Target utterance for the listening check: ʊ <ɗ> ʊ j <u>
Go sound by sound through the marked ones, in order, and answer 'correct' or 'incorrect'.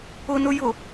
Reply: incorrect, incorrect

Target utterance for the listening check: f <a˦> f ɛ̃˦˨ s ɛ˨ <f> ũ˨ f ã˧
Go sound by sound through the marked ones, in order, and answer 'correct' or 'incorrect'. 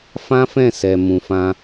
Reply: incorrect, incorrect

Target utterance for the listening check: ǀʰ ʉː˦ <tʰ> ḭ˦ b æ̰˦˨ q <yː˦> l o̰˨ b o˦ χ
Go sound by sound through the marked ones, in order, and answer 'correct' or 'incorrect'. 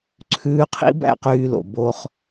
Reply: incorrect, incorrect

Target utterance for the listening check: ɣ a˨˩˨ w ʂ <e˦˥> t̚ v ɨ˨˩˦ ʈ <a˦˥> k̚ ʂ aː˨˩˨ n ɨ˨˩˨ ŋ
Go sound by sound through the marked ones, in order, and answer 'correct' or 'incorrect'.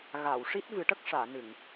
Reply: incorrect, incorrect

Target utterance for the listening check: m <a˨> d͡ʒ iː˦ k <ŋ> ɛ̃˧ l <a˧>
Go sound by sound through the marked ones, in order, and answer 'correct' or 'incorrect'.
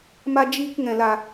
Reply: incorrect, correct, correct

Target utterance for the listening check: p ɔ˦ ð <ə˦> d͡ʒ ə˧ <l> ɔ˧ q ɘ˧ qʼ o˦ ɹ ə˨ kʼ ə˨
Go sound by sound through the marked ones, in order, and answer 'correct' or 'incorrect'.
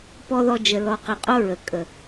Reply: incorrect, correct

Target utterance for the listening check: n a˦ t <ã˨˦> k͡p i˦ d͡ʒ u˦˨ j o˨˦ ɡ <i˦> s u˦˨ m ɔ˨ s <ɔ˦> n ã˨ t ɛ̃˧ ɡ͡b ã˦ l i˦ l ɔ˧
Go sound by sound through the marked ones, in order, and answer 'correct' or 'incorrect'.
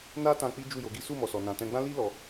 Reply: incorrect, correct, incorrect

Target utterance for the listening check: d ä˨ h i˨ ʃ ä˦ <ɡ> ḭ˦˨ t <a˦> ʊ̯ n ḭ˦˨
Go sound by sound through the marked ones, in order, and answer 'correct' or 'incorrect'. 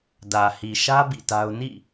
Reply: incorrect, correct

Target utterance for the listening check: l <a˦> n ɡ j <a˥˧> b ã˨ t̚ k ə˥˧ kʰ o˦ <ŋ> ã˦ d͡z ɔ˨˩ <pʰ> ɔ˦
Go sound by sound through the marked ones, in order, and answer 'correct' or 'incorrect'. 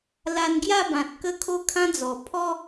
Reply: incorrect, correct, incorrect, correct

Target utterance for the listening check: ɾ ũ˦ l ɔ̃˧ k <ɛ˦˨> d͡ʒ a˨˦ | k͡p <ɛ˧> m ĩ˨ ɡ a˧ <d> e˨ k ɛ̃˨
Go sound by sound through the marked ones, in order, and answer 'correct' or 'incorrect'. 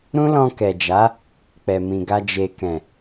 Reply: incorrect, incorrect, incorrect

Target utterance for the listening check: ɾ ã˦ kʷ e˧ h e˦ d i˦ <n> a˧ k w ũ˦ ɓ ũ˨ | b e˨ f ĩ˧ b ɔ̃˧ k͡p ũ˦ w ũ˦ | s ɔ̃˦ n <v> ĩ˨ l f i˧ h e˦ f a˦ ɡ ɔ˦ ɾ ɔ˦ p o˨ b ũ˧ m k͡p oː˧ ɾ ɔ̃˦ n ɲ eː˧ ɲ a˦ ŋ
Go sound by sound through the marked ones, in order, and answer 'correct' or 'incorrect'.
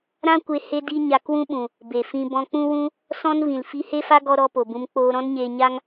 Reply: incorrect, correct

